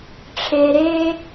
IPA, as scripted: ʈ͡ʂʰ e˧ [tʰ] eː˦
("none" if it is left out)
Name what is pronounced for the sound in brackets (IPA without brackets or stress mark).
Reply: ɾ